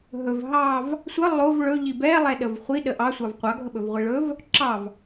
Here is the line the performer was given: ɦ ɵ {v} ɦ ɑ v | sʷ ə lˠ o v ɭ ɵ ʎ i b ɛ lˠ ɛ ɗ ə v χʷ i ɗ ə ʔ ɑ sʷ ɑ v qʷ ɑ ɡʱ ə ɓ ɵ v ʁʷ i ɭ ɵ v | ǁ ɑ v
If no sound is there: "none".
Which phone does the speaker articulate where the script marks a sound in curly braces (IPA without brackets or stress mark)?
v